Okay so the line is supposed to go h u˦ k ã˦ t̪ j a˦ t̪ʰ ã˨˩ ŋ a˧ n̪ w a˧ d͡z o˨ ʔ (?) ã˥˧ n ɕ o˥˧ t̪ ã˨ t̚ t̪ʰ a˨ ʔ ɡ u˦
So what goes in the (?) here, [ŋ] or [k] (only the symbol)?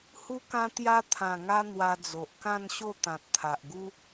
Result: k